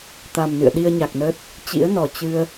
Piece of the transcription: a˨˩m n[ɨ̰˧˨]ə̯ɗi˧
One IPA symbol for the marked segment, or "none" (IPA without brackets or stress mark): ɨ̰˧˨